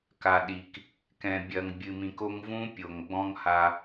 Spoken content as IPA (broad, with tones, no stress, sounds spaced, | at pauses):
k a˨ ɗ i˨ k | k ɛ̃˨ bʲ ɐ˨ ŋ bʲ ɨ˨ m ĩ˨ k o˦ ŋ v ũ˦ pʲ o˨ ŋ ɡ͡b ɔ̃˦ ŋ h a˦